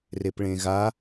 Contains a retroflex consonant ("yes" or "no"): yes